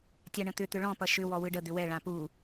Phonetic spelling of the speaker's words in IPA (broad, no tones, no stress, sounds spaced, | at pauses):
tʲ a ɳ ə̃ t̪ ʏ t̪ ʏ ɭ ɔ̃ p ʌ ʃ ʏ w ɔ w ɯ ɖ ə d̪ ʏ w ɛ ɭ ã p u